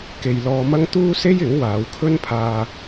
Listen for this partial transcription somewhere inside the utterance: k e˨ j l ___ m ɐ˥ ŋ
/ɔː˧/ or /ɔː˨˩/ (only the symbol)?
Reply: ɔː˧